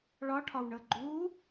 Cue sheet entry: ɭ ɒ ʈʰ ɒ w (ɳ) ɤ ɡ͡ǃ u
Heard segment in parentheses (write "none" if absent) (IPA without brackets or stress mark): ɳ